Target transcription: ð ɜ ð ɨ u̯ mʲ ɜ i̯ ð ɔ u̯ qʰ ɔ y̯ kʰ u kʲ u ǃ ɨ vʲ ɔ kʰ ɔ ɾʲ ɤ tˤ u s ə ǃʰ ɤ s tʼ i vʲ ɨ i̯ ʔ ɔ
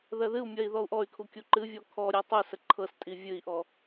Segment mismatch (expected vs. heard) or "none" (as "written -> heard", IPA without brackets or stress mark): qʰ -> ʔ